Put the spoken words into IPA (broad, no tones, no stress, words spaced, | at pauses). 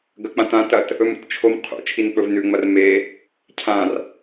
ɡɐk͡pãtã tɐt | ɵmṵtt͡ʃʰom qʰṵ t͡ʃʰink͡pɵvnʉ ŋ͡mɐrme | cʰãr